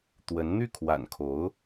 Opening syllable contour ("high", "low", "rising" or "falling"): rising